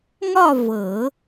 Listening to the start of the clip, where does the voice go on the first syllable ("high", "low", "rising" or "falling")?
falling